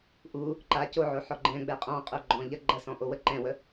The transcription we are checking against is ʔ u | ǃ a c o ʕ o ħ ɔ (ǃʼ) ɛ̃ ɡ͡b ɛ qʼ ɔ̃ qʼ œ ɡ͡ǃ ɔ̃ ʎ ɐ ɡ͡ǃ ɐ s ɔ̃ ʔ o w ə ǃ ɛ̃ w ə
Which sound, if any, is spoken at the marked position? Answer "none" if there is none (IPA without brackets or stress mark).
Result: ɡ͡ǃ